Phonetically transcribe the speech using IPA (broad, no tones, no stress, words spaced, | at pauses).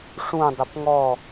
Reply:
ʂũdˤʏp ŋɔ